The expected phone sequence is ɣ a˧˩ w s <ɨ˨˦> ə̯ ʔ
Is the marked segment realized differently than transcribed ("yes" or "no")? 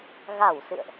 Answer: yes